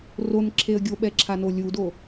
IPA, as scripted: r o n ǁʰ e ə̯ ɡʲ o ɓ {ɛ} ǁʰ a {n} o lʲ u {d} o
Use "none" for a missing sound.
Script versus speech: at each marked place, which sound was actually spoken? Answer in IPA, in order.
ɛ, n, d

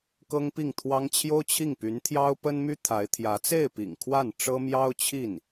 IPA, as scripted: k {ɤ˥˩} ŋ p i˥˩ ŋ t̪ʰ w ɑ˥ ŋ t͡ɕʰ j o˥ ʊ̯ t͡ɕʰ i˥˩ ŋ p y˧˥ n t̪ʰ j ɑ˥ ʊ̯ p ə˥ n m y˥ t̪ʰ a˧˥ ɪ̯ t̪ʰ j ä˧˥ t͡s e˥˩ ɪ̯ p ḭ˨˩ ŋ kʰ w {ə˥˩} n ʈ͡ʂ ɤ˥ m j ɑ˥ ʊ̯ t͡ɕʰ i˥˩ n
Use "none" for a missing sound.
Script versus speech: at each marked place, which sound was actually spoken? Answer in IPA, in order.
ɤ˥, a˥˩

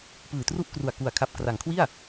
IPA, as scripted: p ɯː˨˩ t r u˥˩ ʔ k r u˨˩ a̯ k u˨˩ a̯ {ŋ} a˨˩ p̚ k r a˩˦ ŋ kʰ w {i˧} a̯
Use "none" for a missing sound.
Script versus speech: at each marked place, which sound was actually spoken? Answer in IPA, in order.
kʰ, i˥˩

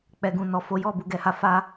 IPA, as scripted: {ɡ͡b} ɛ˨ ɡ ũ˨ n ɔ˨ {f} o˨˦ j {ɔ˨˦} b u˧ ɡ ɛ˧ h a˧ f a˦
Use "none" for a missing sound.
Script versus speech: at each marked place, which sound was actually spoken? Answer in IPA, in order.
k͡p, f, ɔ˦˨

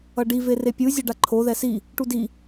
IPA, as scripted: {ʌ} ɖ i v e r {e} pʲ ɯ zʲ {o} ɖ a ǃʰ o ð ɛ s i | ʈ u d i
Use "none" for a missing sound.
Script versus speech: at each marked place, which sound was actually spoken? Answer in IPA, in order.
ʌ, e, o

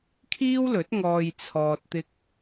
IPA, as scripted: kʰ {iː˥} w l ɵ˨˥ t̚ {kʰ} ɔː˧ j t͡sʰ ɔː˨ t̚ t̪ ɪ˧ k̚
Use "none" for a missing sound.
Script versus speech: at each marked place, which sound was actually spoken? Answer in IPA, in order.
iː˥, ŋ

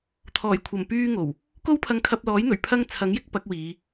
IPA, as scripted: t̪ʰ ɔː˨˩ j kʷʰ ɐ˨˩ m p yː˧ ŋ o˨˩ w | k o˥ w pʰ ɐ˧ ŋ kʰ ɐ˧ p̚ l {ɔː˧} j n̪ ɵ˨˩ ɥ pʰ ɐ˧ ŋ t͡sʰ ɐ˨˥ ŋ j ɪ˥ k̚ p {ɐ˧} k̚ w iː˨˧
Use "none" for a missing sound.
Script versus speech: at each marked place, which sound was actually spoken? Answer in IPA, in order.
ɔː˨˥, ɐ˨˥

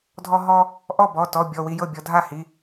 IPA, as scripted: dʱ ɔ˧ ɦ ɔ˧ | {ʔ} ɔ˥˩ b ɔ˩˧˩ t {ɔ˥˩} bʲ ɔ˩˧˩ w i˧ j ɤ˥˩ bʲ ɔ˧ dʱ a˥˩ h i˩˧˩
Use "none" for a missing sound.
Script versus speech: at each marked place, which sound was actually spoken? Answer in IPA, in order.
ʔ, ɔ˩˧˩

